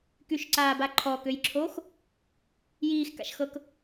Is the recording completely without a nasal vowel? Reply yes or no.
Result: yes